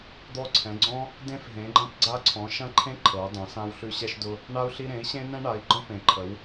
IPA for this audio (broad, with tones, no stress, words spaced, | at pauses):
d̪ɔ˧ǀʰɛ̃˩˧ ɡ͡ǀɔ̃˧ | dẽ˧f ɦẽ˩˧ɡ͡ǃɐ̃˧pɡ͡ǀa˧ ǀʰɔ̃˩˧ʃɐ̃˧ǃʰẽ˧ ǃʰɤ˩˧u̯dˤɐ̃˩˧ sã˧wɬʉ˧ɕɛ˧ʃdʊ˧ | ɳa˧u̯ɬi˧ ɾẽ˩˧i̯ɕẽ˧ nɛ̃˧ɳa˩˧i̯ɡ͡ǃɔ̃˧ pẽ˩˧ǃʰə˩˧w